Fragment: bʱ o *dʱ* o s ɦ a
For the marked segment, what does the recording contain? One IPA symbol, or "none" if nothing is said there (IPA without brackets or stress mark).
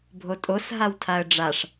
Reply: tʼ